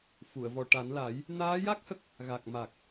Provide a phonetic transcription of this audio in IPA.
fu˨˩˨ə̯vɔ˨˩ ʈa˨˩˦nla˨˩˦j | naː˧˥ja˦˥k̚ hə˦˥k̚ | ɣa˨˩k̚ ma˨˩k̚

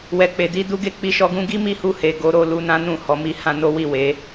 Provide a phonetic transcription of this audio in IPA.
wɛ˨ k͡pe˨di˧du˧ɡe˧ k͡pi˧ʃɔ˧ɡũ˦ ɡi˦mi˦˨hu˧he˨ ɡo˨˦ɾo˦˨ lu˧nã˦ nũ˦˨hɔ˨˦mi˦ hã˦no˦wi˦˨we˨˦

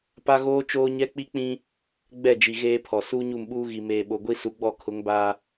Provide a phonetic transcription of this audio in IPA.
pa˦ɣoː˦ t͡ʃoː˦ɲɛ˦ k͡pi˦k͡pĩ˦ | ɡ͡bɛ˦˨d͡ʒi˨ ɣeː˦pʰɔ˨ suː˦ɲu˦˨mɓuː˦ ɣi˨meː˨ɓo˨ ɡʷi˦su˨˦ɡ͡bɔ˦˨kʰʊ˨˦ŋ ba˦

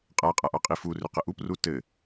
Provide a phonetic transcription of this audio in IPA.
qʼaqʼaʔɑqʼi fu rʏqəʔup rutɘ

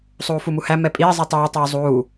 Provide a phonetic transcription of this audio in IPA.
sˤuːfumuhæ mɛpʼiː zˤitˤʉː tˤuːzˤuː

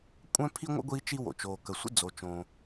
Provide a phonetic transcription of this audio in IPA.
kʷʼœ̃˥pʰi˥ŋʷə̰˥ ɡʷiː˥t͡ʃi˥ wo̰˩t͡ʃoː˩kə˩ sʷə̰˥ d͡zo˩t͡ʃõː˩

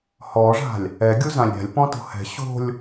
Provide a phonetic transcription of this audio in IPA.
hɔʐa̤lʲ | ɛɡʲuzãlʲ ɾʲa̤lʲpɔ̃to̤ hɛ̤ ɕo̤lʲ

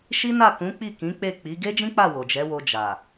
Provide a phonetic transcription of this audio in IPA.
ʃi˦na˦˨ kũ˨˦k͡pi˦˨ kĩ˨˦k͡pe˦˨k͡pi˨˦ ɡe˦d͡ʒĩ˦k͡pa˦˨ wo˨d͡ʒɛ˨˦wo˧ d͡ʒa˨

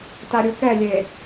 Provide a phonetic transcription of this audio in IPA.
taɾʲukɛlʲe

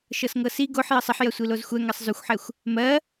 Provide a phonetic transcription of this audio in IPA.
ʃɤsŋɤsi ɡoħ jɤsˤəħ jɐsʷilozxʷɛ ŋɜsˤzʉxʷħɛxʷ | mɜ

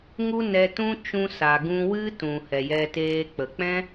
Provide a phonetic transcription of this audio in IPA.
ŋu˦nɛ˧tũ˦t͡ʃũ˧ sa˨ɡũ˧wɨ˦ tũ˨hɛ˨jɛ˧teː˧ k͡pə˨k͡pɛ̃˦

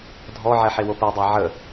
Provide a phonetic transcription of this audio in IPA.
dʱɔʕɛ ħewopɛdˤæ ʕə

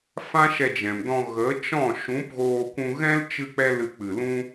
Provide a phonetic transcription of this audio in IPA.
fã˦ʃɛ˧d͡ʒɛ̃˨mdɔ̃˧ ɣə˨˦t͡ʃɔ̃˦˨ ʃũ˨˦pɣoː˧kʷũ˧ɣɛ̃˦l t͡ʃɨ˦k͡pɛ˦ lɨ˧k͡pɨ˨lũ˦

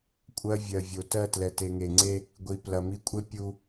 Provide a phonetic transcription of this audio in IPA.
kʷʼɜ˦ vʲɜ˨vʲo˨ tɜ˦˨tlɛ˨te˨ ŋe˨ŋ͡ǀe˦ | ɡʷi˨plɐ˨mi˦ kʷʼe˦ pʲu˦

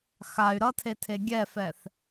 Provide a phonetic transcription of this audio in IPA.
xay̯ ɾʌtʰetʰe ɡʲɛfɛθ

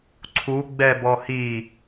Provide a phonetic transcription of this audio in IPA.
ǀʰu ɡ͡bɛbɔhi

